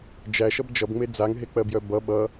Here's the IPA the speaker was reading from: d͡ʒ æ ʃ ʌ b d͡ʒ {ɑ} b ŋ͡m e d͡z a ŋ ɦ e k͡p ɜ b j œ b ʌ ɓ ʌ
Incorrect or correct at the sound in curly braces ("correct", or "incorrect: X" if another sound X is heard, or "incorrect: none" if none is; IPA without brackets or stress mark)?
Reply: incorrect: ʌ